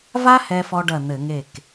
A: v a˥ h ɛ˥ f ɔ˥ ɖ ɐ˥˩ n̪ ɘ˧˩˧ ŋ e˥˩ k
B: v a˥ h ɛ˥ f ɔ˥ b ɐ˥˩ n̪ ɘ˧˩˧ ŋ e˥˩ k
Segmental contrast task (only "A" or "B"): A